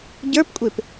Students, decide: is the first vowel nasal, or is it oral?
oral